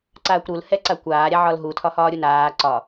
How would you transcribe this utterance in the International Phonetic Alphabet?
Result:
ǀ aː kʷ ɾ u l h ɛ ǀ a kʷ aː ɾʲ a ʕ ɒ l ɦ u tʰ ɒ h ɒː ɾʲ u n aː ǀ ɒ

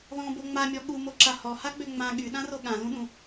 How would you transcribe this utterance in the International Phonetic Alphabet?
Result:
ð ɔ̃ b o ŋ͡m a mʲ ɔ ɠ u m o ǁ a h ɔ h a ɡ͡b ø ŋ͡m ã ɠ y ɗ ã r o ɠ ã l ũ ɗ ũ

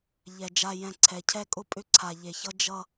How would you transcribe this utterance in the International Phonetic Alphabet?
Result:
ʎ ɛ˨ d͡ʒ a˨ j ɛ̃˨ ǀʰ ɛ˨ cʰ ɛ˦ kʼ ʊ˦ pʼ ʏ˦ ǀʰ a˨ ʎ e˨ ç ʌ˦ d͡ʒ ʌ˦

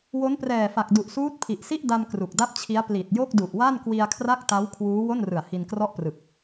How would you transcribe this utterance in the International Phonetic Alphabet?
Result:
w o˦˥ n p r ɛː˨˩ f a˨˩ k̚ d u˨˩ ʔ s uː˦˥ t̚ pʰ i˨˩ ʔ s i˥˩ ʔ d a˧ m k r u˨˩ k̚ d a˥˩ p̚ t͡ɕʰ i˦˥ a̯ p l i˨˩ t̚ j o˥˩ k̚ d u˨˩ ʔ w a˥˩ n k w i˧ a̯ kʰ r a˥˩ k̚ t a˦˥ w kʰ w uː˦˥ w o˥˩ n r ɯ˨˩ a̯ h i˧ n k r ɔ˥˩ ʔ p r ɯ˨˩ k̚

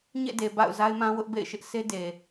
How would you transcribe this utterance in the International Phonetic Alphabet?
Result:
ɲ ḛ˦˨ d e˨ b a̰˦˨ ʊ̯ z a˦ ɪ̯ m ã˦ w ʊ˦ ʔ b ḛ˦˨ ɪ̯ ʃ ɪ˦ ʔ sʰ e˦ d e˨

